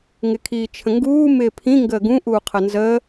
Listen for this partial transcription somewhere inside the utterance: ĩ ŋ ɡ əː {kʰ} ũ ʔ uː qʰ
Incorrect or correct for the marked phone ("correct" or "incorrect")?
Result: incorrect